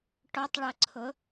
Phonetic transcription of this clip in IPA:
ʈɔtˤɭʌǀʰʊ

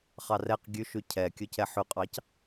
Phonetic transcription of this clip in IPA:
χɑrɛq ɡʲʉʃʉ cʰɛkʲɵcɛ ħʉqʼɑc

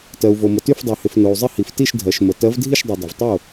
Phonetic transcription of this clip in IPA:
tɜ˩u̯vo˩mə˩ ty˥˩fdˤy˩ hɪ˩f no˩u̯zˤɪ˥˩hi˩f ti˥˩ʃ dʱɜ˩ʃmə˩ tɜ˨˥vdʱi˥˩ʃdˤy˩ dˤɪ˩vtˤo˥˩

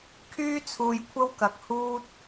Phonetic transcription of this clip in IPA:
kʰyː˥ t͡sʰuː˧jkʷʰɐ˥wkɐ˨˥k̚ huː˥t̚

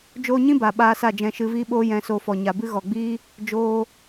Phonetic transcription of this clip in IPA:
d͡ʒoː˧ɲĩ˦ ba˨ɓaː˧sa˦˨ d͡ʒɛ̃˧ʃɨ˧viː˦ɓoː˦ jɛ̃˧ so˧fɔ˨ ɲa˨bɨ˦ ɣɔ˨ ɡ͡biː˦ | d͡ʒoː˧

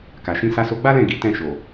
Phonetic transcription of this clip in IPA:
ka˨ʃĩ˧ sa˧so˧ɡ͡ba˦lɛ̃˦˨ ɡi˨˦ tɛ̃˦˨ʃo˨

